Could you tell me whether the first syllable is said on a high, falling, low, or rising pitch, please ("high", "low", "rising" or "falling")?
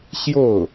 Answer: falling